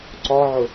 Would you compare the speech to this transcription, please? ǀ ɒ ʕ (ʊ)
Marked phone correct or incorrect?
correct